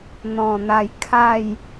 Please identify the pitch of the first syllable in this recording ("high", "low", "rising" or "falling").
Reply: low